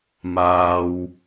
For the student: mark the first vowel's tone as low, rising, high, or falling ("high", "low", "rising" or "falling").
low